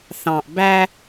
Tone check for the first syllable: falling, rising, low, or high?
low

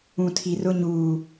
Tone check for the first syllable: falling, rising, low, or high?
low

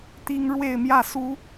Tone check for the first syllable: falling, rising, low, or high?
high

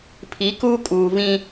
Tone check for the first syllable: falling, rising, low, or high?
rising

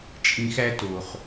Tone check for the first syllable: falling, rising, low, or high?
low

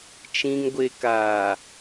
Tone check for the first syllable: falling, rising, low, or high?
low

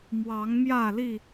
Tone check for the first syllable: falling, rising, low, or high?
rising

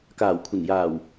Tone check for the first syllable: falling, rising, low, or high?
low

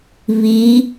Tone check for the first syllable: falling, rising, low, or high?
rising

